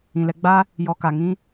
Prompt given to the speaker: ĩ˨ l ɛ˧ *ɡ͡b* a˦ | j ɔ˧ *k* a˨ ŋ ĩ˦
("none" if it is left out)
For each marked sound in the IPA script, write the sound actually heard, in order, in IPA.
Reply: ɡ͡b, k

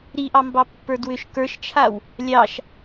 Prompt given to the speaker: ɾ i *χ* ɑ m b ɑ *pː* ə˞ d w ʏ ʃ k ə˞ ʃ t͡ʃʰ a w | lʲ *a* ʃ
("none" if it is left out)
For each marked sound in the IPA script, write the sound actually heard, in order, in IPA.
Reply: ʔ, pː, ɑ

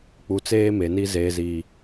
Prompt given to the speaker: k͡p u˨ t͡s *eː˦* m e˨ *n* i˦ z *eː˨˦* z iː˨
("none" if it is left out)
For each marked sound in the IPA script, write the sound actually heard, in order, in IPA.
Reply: eː˦, n, eː˨

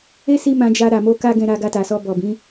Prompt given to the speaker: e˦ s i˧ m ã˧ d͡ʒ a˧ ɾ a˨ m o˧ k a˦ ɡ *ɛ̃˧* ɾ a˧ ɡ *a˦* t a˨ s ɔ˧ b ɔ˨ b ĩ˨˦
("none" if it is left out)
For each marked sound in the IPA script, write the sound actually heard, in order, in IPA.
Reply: ɛ̃˧, a˧

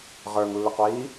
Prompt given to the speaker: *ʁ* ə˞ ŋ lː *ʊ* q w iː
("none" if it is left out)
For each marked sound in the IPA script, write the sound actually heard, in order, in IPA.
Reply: ʁ, ʊ

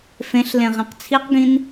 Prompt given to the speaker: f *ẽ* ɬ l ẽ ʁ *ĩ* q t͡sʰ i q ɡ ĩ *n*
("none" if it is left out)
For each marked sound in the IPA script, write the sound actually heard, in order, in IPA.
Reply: ẽ, ẽ, n

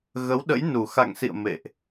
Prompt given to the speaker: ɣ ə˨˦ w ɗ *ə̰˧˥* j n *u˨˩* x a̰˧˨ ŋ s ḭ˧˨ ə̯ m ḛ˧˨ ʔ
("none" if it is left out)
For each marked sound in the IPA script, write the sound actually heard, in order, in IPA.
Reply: ə̰˧˥, u˨˩

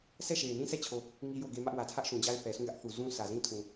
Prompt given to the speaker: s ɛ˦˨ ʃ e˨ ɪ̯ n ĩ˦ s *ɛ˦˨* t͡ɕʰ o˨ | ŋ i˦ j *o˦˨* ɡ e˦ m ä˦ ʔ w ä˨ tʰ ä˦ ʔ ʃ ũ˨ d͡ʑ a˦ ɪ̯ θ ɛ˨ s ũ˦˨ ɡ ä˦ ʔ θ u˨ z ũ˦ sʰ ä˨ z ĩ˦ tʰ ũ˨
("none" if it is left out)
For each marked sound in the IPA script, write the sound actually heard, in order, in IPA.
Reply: ɛ˦˨, o˦˨

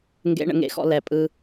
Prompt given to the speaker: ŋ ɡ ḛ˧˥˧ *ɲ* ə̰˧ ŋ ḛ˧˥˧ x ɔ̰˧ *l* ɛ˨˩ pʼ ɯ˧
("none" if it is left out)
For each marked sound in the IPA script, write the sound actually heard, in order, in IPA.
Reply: ɳ, l

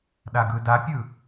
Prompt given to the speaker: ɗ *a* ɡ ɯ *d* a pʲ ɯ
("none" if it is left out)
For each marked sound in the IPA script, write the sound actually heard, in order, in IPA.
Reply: a, d

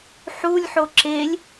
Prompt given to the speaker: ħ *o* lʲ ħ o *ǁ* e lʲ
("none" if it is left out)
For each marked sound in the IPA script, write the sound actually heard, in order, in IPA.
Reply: u, ǁ

